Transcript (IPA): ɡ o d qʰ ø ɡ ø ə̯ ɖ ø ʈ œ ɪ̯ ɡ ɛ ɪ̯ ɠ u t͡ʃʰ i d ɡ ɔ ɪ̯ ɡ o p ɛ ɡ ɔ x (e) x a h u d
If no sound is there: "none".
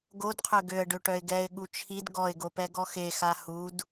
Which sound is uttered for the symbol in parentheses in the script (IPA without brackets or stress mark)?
e